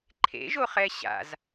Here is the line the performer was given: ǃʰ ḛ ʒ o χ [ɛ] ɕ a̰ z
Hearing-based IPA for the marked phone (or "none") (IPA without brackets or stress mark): ɛ